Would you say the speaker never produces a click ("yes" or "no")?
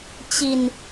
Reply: yes